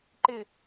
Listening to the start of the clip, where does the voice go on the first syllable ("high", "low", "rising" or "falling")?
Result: low